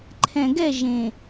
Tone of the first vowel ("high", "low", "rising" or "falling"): low